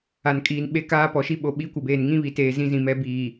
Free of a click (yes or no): yes